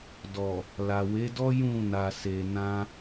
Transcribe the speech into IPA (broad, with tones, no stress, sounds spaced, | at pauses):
d ɔ˨ | l a˨ w e˨˦ d ɔ˦ j ũ˦˨ n a˨ s e˨ n ã˧